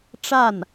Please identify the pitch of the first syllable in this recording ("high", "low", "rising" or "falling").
falling